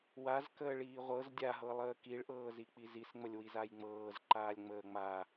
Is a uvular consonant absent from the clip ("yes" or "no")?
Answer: no